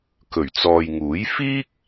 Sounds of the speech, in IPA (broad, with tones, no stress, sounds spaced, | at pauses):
k ɵ˨˩ ɥ t͡s ɔː˨ j ŋ uː˨˥ j f iː˥ k̚